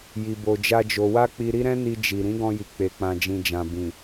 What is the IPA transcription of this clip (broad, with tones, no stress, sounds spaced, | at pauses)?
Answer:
j i˧ b o˧ d͡ʒ a˦ d͡ʒ o˧ w a˦ k͡p i˧ ɾ i˦ ɾ ɛ̃˦ n i˧ d͡ʒ i˨ ɾ ĩ˨˦ ɡ ɔ̃˧ j i˨ k͡p e˨ k͡p ã˨ d͡ʒ ĩ˨ d͡ʒ ã˨ b ĩ˨